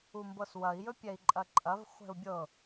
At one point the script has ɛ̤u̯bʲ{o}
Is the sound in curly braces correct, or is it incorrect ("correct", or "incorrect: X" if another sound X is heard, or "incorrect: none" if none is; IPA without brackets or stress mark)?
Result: incorrect: ɤ